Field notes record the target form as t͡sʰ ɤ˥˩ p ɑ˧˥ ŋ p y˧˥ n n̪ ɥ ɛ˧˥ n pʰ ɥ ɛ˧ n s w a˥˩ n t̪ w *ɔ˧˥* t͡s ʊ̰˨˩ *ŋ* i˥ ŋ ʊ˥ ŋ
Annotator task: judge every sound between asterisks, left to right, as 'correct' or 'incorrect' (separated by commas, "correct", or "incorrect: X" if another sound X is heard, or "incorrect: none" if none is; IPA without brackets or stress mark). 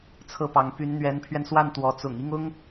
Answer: correct, correct